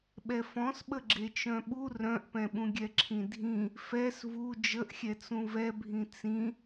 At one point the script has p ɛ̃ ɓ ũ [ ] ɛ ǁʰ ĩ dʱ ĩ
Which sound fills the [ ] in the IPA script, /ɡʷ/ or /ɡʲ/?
ɡʲ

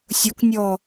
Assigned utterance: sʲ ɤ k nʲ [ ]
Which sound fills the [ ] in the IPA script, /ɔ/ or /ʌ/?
ɔ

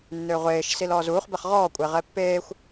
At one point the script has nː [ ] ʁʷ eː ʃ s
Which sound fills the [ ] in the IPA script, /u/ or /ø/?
ø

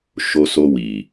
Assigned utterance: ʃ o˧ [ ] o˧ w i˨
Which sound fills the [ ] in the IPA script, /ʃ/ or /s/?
s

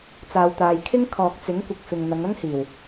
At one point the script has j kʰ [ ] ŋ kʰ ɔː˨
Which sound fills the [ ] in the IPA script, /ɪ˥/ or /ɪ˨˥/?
ɪ˥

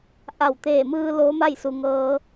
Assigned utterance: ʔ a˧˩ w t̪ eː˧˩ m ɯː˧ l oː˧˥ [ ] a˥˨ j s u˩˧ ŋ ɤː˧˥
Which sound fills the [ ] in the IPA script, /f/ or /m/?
m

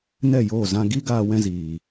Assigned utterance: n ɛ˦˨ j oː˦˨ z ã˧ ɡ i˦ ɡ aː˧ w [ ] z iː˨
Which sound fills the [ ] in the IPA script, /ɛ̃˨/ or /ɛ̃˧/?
ɛ̃˧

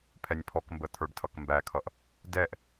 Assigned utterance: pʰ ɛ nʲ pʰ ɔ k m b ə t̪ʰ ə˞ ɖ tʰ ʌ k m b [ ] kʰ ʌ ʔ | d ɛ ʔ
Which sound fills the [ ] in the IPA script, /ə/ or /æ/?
æ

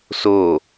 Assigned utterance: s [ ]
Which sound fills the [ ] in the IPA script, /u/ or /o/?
o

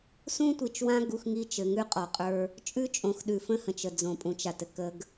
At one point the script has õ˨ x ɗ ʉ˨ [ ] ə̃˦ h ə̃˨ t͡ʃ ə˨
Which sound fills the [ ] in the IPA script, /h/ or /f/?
f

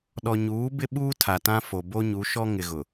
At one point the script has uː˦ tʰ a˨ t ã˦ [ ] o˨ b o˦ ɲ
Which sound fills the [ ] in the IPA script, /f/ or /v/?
f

